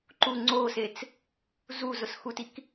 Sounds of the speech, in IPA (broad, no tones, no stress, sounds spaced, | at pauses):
ǃ u ŋ͡ǀ o s e t͡s | z u z ʊ s x u t i k